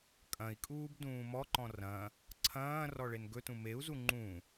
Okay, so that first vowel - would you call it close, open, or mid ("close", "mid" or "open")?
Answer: open